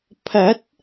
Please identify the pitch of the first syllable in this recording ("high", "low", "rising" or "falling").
rising